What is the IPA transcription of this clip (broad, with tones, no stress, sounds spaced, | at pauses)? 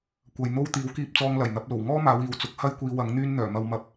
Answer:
kʷ ɐ˨ j n̪ o˥ w t̪ iː˨˥ w k iː˧ p̚ t͡s ɔː˧ ŋ l ɐ˨˩ j n̪ ɐ˨˥ p̚ l o˨˩ w ŋ ɔː˥ m aː˨˧ w iː˨ w t͡s ʊ˨˥ k̚ h ɐ˥ j kʷ iː˧ w ɐ˨˥ ŋ n̪ yː˥ n n̪ œː˨˩ m ɐ˨ w m ɐ˨˥ p̚